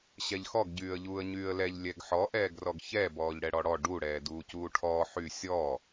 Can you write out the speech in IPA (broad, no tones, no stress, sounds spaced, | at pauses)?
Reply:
ɕ ɛ ʎ x ɔ ɡ ɟ yː ə̯ ʎ uː ə̯ ɲ yː ə̯ l ɛ ʎ lʲ ɛ ɡ ħ ɔ ʔ ɛː ɡ r ɔ ɡ ç ɛ b ɔː ʎ ɽ ɛ ɽ ɔ ɽ ɔ ɖ u ɽ ɛː d uː c uː ʈʰ ɔː ħ y sʲ ɔː